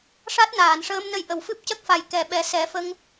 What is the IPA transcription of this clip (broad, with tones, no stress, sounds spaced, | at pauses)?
ʂ a˦˥ t̚ n aː˨˩˨ n ʂ əː˧ m n ə˧ j ʔ ə˨˩˨ w f ɨ˦˥ p̚ c ə˦˥ k̚ f a˨˩ j k ɛ˨˩˨ ɓ ɛ˨˩˦ s ɛ˨˩˦ f ə˧ ŋ